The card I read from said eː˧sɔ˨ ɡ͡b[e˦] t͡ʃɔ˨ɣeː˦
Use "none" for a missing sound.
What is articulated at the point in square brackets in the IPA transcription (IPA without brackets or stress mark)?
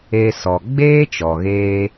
eː˦